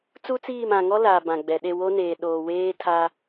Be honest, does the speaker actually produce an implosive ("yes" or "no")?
yes